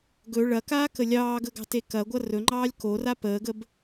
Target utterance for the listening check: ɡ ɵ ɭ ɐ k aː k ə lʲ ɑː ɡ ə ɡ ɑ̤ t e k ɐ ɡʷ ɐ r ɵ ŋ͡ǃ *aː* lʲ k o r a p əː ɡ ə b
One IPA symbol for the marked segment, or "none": ɑː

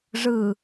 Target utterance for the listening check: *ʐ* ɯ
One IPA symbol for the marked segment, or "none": ʐ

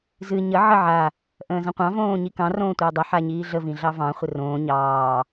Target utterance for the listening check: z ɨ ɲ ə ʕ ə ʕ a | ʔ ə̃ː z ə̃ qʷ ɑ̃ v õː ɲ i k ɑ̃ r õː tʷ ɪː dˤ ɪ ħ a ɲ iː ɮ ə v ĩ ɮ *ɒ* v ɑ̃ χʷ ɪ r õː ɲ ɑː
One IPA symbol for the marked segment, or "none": ɑ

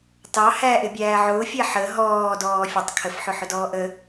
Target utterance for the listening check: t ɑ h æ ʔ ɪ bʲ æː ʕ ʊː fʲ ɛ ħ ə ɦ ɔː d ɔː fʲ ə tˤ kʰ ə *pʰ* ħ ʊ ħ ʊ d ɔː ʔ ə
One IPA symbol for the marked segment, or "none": f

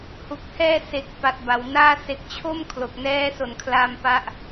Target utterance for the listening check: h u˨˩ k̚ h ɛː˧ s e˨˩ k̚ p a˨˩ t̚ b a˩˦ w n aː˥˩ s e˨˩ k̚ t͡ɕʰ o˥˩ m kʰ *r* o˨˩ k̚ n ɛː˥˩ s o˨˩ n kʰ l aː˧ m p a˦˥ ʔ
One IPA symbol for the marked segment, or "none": l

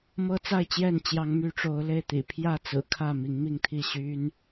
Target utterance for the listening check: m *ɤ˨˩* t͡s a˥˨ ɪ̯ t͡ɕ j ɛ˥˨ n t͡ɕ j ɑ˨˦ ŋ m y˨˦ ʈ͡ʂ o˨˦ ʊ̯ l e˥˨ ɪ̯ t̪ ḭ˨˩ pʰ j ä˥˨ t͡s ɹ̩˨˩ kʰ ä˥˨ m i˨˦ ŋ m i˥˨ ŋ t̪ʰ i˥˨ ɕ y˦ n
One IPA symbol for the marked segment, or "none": ɤ˦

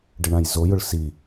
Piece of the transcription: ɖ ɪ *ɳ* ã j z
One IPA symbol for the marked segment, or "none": ɳ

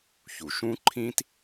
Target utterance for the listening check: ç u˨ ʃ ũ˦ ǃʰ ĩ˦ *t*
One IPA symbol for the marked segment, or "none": t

